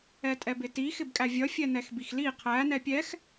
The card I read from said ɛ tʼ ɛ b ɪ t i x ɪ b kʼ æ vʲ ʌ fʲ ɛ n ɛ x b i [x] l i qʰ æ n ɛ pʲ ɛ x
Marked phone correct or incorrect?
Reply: correct